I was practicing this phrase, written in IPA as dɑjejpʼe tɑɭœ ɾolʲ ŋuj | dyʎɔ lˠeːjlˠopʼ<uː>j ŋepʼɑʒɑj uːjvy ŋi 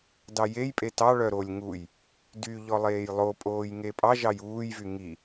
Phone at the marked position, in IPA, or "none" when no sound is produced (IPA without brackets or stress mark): oː